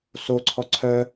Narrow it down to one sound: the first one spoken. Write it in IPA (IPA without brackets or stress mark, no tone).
s